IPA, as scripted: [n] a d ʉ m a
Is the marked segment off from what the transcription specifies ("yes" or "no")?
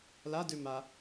yes